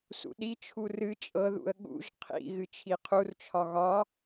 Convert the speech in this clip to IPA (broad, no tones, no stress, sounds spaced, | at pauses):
s ṵ ɗ i t͡ʃʰ u r ɨ t͡ʃʼ ɤ ð ṵ ə̯ ɠ ṵ ʒ qʰ ḭ ɣ ɨ t͡ʃʰ i qʰ u r t͡ʃʰ ɒ ɣ ɒ